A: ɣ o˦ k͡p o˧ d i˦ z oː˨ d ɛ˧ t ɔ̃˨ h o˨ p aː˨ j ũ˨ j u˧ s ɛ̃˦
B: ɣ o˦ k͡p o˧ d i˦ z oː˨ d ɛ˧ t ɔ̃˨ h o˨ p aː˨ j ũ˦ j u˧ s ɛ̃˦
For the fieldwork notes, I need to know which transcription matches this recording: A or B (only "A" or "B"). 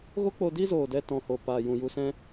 A